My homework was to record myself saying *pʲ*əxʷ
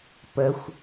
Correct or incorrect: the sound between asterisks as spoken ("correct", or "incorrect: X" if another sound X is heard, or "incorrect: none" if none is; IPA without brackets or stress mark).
incorrect: p